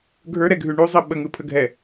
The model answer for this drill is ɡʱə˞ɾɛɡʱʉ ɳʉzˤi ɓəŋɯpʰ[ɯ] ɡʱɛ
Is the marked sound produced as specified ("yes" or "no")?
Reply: no